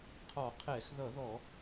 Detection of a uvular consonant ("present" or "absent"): present